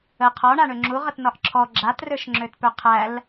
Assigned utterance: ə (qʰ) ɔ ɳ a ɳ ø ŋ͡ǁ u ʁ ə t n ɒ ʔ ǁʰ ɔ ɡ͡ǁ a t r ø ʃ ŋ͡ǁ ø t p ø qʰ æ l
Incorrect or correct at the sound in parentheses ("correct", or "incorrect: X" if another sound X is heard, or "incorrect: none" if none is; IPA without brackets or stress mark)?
correct